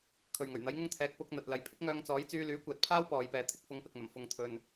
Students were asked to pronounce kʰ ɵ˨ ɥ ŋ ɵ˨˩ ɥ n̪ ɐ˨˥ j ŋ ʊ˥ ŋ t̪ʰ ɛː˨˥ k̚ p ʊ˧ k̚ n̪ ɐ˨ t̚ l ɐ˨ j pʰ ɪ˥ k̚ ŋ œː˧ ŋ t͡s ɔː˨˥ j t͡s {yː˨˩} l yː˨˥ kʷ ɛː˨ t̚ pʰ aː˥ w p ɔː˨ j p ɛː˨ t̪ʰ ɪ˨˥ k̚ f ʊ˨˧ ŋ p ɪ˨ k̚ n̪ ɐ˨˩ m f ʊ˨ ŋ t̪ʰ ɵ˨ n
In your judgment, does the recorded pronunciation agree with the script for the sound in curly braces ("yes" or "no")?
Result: no